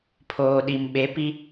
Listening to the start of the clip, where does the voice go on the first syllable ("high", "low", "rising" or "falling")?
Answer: low